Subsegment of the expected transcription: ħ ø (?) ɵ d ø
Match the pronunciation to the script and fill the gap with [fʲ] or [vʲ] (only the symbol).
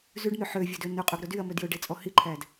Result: vʲ